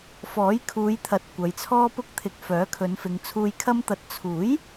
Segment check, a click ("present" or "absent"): absent